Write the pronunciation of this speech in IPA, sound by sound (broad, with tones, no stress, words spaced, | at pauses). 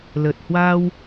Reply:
ləː˨˩t̚hwaː˧w